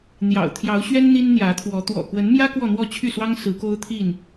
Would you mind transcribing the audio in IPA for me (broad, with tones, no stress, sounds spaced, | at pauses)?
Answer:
n̪ j ɑ̰˨˩ ʊ̯ t̪ʰ j ɑ˨˦ ʊ̯ ɕ ɥ ɛ˦ n n̪ i˦ n n̪ j ä˨˦ t̪ʰ w ɔ˨˦ t̪ w ɔ̰˨˩ k w ə˨˦ n m j ä˦ k w ɔ˥˨ n̪ w ɔ˥˨ t͡ɕʰ y˥˨ s w ɑ˦ ŋ s ɹ̩˨˦ k o˦ ʊ̯ t̪ʰ i˥˨ n